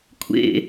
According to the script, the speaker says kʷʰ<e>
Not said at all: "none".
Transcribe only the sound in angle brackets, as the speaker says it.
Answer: ḛ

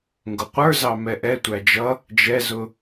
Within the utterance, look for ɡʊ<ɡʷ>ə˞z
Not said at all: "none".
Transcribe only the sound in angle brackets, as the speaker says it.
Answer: qʷ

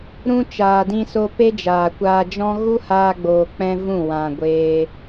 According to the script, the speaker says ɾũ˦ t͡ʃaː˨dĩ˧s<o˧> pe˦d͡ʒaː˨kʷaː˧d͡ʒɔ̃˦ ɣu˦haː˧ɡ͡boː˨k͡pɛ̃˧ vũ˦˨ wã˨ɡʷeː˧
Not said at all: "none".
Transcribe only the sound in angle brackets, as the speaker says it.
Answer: o˧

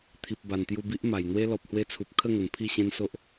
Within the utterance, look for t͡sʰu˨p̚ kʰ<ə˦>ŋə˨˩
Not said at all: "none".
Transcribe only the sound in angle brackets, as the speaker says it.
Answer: ə˥˧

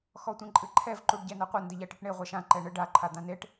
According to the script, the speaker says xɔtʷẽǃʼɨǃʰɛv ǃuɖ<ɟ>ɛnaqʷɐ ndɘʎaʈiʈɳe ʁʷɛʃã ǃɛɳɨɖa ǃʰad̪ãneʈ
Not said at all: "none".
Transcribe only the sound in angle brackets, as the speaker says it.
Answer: ɟ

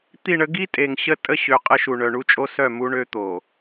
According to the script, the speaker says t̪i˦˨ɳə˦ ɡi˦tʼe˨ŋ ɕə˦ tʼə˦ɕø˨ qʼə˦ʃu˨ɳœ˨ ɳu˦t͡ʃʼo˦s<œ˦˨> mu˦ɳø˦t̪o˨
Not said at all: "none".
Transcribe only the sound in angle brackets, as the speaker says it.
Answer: œ˦˨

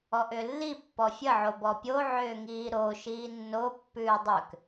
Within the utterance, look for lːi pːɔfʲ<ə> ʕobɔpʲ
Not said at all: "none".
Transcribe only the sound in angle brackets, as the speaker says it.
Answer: ə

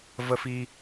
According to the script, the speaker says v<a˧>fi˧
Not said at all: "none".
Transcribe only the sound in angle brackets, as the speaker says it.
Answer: ə˧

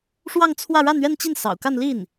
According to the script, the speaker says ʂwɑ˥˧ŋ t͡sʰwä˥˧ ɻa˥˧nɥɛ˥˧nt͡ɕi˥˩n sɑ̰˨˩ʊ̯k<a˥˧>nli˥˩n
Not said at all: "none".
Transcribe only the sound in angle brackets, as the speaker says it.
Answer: a˥˧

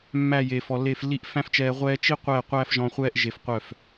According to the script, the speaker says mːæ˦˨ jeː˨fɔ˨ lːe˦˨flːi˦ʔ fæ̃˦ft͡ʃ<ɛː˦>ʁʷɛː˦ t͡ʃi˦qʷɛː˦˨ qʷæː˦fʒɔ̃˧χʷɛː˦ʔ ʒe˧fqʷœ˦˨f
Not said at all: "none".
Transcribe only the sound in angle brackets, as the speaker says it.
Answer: ɛː˧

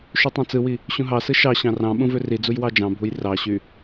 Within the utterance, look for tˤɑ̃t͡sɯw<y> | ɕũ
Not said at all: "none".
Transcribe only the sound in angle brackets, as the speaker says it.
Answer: i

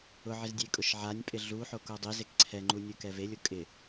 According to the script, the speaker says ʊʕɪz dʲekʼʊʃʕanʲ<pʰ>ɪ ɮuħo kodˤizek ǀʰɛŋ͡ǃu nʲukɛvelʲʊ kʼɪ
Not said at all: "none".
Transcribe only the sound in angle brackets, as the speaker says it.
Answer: pʼ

